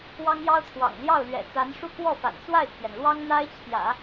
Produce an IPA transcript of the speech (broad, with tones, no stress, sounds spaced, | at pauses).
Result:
w ɑ˥ ŋ j ɑ˥ ʊ̯ t̪ʰ w ɑ̰˨˩ ŋ l j ɑ˥˩ ʊ̯ l ɥ ɛ̰˨˩ t͡s a˧˥ n ʂ u˥˧ k w ɔ˥˩ f a̰˨˩ n t͡s w a˥˩ ɪ̯ t̪ʰ j ɛ˩ n l w ɑ˥ ŋ n̪ a˥ ɪ̯ t͡ɕʰ j ä̰˨˩˦